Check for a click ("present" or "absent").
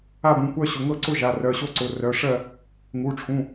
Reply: present